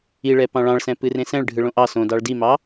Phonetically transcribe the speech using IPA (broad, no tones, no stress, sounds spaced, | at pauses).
i ɭ ɛ p ɑ̃ ɭ ɑ̃ ɭ s ɛ̃ p ɨ r ẽ s ɛ̃ ɭ ɖʱ ɯ ɭ õ ʔ ɑ s õ d ɑ ɭ d i m ɑ